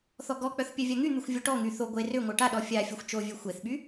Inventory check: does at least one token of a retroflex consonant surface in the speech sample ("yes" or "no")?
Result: yes